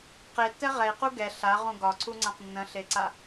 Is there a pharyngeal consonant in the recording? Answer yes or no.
no